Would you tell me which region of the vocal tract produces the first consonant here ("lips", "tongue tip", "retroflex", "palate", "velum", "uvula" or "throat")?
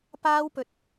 lips